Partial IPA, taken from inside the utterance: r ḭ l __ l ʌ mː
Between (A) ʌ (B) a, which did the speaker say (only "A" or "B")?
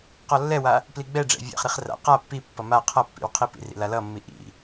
B